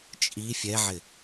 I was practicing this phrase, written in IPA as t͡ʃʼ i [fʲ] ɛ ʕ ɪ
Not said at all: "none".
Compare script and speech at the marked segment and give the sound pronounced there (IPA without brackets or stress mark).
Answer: fʲ